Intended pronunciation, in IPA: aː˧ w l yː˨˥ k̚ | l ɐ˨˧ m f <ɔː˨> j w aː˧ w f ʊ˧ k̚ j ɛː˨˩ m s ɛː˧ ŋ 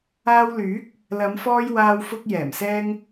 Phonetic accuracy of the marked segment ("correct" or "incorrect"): incorrect